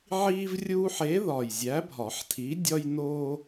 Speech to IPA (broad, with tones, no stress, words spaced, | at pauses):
ʕiː˦vrʲuː˦ħe˨˥ ðɒ˨˩jzʲæ˨˥bʱɒ˨˩˦ħtʰi˨˥ dʲɒ˦jnoː˦